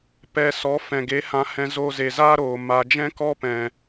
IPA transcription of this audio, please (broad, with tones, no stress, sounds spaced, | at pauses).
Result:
p ɛ˧ s ɔ˨˦ f ɛ̃˨ ɡ e˨˦ h ã˧ h ɛ̃˧ z o˧ z e˨ z aː˦ ɾ oː˨ m a˧ d͡ʒ ɛ̃˦ k ɔ˦ p ɛ̃˨